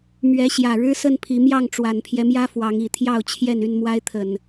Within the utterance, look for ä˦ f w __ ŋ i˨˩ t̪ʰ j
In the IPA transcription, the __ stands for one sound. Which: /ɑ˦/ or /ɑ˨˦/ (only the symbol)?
ɑ˨˦